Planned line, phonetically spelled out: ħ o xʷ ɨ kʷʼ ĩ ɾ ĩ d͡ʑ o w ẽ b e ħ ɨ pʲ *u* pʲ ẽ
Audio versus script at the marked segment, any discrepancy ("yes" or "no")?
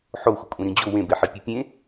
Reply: yes